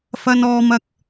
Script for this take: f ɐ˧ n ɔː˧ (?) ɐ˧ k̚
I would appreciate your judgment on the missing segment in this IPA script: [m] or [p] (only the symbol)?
m